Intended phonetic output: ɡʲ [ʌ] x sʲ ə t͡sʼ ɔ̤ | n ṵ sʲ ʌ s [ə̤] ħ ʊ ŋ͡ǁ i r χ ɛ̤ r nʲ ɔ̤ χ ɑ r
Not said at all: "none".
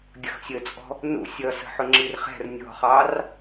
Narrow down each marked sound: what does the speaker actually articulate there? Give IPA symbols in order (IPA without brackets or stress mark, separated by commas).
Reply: ə, ə̤